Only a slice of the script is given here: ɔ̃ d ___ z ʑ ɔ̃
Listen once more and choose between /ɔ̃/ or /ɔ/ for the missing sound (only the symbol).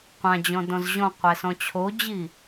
ɔ̃